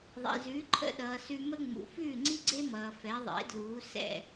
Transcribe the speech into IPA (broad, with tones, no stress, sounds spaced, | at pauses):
ðˤ ḛ˩ z ʉː˩˥ ǃʰ ə̰˧ ɗ ʌː˩ s ʉ˧ m ə˥ ŋ͡m ṵ˩ f ʉː˥˩ ŋ͡ǀ i˥ ɡ͡ǀ e˥ m ʌː˩ f ɛ˩˥ ðˤ ḛ˩˥ d l uː˩˥ s ɛ̰˥˩